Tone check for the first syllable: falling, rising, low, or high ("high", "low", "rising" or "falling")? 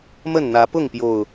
falling